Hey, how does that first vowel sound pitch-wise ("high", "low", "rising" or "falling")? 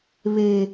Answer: low